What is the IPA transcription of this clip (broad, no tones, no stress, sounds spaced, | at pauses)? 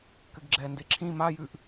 k ɘ ɡ ɡ͡ǁ ɛː n d e ǁʰ ĩ m a j ʉ ʔ